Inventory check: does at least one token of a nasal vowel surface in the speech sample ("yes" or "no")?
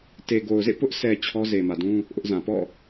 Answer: yes